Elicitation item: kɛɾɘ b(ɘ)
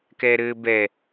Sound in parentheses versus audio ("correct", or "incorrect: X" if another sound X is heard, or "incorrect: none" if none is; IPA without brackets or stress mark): incorrect: ɛ